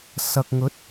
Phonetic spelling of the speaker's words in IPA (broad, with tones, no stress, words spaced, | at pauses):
sɐ˨k̚ŋɵ˨˥t̚